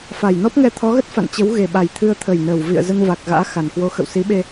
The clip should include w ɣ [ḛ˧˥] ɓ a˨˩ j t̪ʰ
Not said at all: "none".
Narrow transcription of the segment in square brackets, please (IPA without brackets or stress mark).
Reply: e˨˩